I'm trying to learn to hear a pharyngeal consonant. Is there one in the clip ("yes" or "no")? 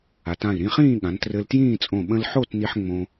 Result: yes